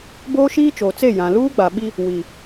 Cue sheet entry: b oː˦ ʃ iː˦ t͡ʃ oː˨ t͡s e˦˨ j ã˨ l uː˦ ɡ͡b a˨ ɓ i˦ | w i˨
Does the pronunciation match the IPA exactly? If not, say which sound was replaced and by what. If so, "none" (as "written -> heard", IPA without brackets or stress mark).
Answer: none